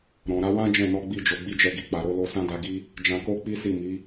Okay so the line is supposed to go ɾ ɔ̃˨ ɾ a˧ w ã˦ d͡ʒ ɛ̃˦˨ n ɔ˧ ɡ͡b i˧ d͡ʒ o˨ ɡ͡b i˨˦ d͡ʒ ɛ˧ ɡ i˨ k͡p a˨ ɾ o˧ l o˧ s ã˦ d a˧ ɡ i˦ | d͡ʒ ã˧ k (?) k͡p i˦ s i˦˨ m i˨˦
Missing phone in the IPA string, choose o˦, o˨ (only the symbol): o˦